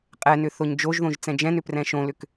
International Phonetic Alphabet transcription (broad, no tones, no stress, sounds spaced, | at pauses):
qʼ ɛ n ʏ θ o ɲ d͡ʒ o ʒ ð õ ʒ t͡s ɛ̃ d͡ʒ ɛ̃ n ʏ p r ɛ̃ ʃ õ l ʏ k